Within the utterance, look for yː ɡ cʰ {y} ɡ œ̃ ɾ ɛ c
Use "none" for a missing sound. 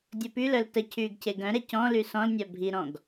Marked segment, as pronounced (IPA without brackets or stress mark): e